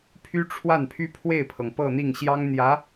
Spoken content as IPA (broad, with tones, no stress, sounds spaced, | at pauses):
pʰ y˥ ʈ͡ʂʰ w a˥˩ n pʰ y˥ pʰ w e˥˩ ɪ̯ pʰ ɤ˩ ŋ p ɤ˥˧ n̪ i˥˩ ŋ ɕ j ɑ˥ ŋ n̪ j ä˧˥